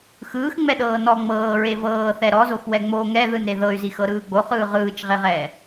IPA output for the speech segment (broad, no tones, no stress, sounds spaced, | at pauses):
x ɯː x ŋ͡m ɛ ɗ ɤː n ɔ ŋ͡m ɤː ɹ e v ɤː θ ɛ ɾ ɔ z o x w ɛ ŋ͡m o ŋ ɛ ð ɯ n ɾ e ð ɤ y̯ z i x ɤ ɾ ɯː ɡ͡b o χ ɯː ʁ ɯː t͡ʃ ʁ e ʁ ɛː